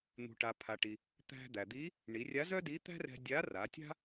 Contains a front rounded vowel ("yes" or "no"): yes